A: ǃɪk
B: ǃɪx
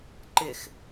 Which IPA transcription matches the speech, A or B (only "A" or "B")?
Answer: B